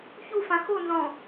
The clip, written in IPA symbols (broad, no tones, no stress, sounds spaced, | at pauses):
ç u f ã x o n z ɔ̃